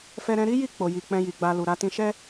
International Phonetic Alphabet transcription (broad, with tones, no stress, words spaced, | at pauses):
fɛ˦ɾɛ̃˦ ɾi˦ji˦˨ k͡po˨ji˨ k͡pɛ̃˧ji˨ɡ͡ba˧ lu˨ɾa˨˦ tĩ˧ʃɛ˦